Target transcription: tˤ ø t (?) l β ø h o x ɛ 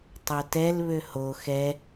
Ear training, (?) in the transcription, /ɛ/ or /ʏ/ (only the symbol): ɛ